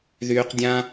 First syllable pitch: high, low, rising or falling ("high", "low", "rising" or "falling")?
low